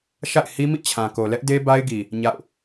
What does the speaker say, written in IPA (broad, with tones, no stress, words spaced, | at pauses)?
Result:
ʃa̰˦˨ɪ̯hi˦mḭ˦˨ t͡ɕʰã˨ko˨lɛ˦ʔ de˦ ba˦ɪ̯ɡi˨ | ɲa̰˦˨ʊ̯